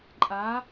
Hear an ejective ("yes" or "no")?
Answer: yes